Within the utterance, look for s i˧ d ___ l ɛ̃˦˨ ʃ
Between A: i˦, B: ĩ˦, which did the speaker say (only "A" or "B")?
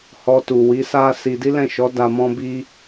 A